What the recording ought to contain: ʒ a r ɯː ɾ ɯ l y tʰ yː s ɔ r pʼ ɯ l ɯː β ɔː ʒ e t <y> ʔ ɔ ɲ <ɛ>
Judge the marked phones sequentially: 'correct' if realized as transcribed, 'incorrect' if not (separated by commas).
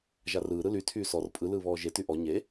correct, incorrect